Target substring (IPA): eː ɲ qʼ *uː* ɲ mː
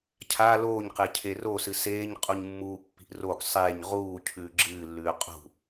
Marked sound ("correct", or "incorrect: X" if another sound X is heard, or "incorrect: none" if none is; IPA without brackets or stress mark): incorrect: u